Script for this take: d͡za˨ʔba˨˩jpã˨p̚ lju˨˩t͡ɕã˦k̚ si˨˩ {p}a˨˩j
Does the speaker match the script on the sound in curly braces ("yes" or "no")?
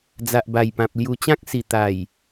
no